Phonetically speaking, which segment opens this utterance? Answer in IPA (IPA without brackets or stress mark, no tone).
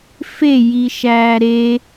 f